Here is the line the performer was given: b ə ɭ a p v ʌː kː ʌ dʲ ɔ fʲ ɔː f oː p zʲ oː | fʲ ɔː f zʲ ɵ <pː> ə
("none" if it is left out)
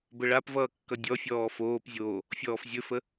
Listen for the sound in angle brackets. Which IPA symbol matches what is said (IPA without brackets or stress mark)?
f